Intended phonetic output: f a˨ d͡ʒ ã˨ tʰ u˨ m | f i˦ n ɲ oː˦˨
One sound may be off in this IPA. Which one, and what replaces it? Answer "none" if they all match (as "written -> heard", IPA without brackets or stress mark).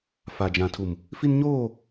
none